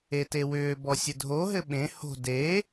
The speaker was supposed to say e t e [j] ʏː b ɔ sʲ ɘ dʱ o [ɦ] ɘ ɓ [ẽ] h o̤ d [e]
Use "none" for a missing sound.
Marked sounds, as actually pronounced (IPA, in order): w, ɦ, ẽ, e

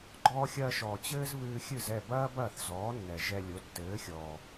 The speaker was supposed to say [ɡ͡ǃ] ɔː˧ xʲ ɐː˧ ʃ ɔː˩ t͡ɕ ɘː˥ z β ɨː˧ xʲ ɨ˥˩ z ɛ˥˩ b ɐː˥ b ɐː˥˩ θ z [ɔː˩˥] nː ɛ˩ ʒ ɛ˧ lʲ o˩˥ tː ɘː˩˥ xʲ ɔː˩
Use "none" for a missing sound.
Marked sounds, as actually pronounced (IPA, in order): ɡ͡ǃ, ɔː˩˥

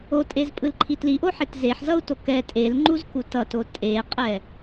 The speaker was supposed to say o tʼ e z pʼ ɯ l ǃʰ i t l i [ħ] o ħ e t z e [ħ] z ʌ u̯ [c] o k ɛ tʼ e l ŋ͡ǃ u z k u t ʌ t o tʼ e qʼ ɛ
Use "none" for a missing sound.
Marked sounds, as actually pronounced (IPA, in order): ʔ, ħ, t

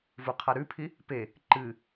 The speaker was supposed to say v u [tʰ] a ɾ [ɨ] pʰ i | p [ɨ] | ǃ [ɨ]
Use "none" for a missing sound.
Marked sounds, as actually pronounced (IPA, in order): qʰ, ʉ, e, ɨ

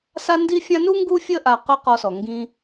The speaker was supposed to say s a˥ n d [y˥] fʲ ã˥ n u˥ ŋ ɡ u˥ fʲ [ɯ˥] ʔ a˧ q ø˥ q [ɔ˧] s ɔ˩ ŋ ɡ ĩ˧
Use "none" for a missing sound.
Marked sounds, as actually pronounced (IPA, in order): i˥, ə˥, ɔ˧

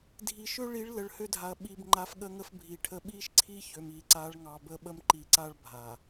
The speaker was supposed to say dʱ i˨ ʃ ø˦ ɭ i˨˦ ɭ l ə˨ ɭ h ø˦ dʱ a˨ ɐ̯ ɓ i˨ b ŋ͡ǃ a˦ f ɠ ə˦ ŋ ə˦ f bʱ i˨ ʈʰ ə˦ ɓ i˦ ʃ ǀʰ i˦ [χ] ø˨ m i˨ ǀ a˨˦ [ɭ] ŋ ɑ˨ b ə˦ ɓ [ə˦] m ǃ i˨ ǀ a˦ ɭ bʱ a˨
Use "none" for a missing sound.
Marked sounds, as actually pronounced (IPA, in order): ç, ɭ, ə˦

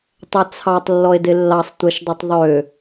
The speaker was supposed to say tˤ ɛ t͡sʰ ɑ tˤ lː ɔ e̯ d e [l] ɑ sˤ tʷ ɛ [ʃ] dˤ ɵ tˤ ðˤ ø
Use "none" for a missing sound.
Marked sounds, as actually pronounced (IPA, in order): lː, ʃ

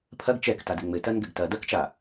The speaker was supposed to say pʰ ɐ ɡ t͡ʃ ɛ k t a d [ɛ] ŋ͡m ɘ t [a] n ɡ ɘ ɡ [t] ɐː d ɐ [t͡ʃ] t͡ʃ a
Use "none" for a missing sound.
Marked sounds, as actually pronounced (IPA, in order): ɘ, ɐ, t, k

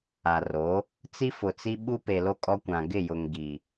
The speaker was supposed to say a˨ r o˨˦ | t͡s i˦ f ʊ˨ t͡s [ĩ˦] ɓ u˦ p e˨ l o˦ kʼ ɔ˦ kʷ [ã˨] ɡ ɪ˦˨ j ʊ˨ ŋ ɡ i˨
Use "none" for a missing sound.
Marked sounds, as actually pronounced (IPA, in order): i˦, ã˨

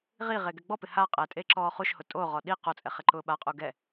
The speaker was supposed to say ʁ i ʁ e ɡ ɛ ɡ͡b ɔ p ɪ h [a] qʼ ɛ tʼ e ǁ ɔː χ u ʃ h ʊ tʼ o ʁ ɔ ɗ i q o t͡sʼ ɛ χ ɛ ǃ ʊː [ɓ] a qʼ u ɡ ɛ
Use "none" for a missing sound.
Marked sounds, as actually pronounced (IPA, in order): a, ɓ

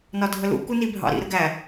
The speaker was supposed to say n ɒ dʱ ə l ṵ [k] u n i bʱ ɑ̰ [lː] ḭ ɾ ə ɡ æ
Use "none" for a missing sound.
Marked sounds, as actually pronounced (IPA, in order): k, ɾ

